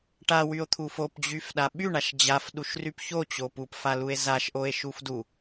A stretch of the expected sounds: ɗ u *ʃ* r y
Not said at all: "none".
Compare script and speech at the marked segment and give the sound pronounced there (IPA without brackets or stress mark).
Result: ʃ